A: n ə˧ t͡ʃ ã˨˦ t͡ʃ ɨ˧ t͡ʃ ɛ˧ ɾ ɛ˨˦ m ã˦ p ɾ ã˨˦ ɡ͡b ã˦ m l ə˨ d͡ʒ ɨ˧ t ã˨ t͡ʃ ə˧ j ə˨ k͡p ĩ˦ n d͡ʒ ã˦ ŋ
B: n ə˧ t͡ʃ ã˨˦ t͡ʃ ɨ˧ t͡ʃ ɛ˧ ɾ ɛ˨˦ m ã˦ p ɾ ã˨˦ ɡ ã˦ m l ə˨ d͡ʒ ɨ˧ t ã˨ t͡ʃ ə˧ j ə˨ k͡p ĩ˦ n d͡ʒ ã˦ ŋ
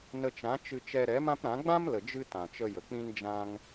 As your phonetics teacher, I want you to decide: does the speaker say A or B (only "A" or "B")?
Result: A